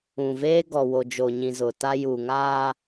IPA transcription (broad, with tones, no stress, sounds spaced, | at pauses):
ũ˨ v eː˦ ɡ ɔ˨ w o˨ d͡ʒ o˨ ɲ ĩ˨ z ʊ˨ t a˦ j u˨ ŋ aː˦